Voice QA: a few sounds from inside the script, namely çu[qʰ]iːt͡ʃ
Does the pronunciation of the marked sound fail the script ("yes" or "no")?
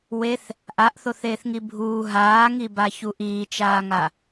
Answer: yes